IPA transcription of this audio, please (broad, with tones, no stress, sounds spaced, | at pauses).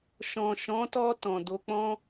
ʃ ɔ̃˨ ʃ ɔ̃˨˦ t ɔ˧ t ɔ̃˨ d o˨ k͡p ɔ̃˧